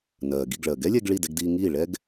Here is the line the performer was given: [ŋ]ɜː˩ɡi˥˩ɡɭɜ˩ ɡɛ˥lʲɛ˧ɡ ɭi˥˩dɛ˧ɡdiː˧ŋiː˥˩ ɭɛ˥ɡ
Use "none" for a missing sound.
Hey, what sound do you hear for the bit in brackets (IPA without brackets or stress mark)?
n